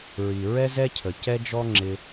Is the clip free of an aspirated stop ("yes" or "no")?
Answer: no